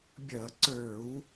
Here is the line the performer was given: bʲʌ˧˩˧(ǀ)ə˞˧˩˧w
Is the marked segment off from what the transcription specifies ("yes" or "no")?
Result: no